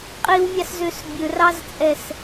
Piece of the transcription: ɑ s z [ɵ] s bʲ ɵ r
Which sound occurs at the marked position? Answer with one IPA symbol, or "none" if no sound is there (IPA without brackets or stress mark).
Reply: ø